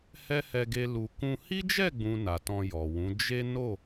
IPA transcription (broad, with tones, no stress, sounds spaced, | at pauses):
h ɛ˦ h ɛ˧ ɡ e˧ l u˨ k ũ˧ h i˦ d͡ʒ ɛ˦˨ ɡ͡b ũ˨ n a˨ t ɔ̃˧ j ɔ˨ w ũ˨˦ d͡ʒ e˦ n o˦˨